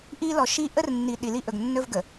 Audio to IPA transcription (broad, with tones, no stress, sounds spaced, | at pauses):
ʔ i˦ l ɔ˨ ʃ i˦ ʔ ə˦ r nː i˨ ɗ i˨ l i˦ ʔ ɵ˨ ɡ nː ɵ˦ v ɡ ə˨